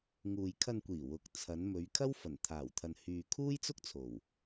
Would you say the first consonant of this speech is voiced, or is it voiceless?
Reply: voiced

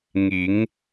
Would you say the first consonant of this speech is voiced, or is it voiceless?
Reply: voiced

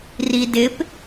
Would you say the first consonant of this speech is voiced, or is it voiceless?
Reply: voiced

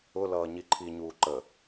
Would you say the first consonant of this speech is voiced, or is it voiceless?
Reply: voiced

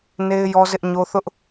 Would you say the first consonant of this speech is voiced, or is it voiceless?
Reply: voiced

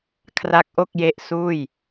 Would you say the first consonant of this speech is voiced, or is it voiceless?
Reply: voiceless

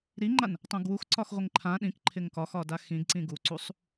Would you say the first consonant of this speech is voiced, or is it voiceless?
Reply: voiced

